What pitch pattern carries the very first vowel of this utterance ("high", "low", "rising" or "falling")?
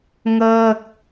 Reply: falling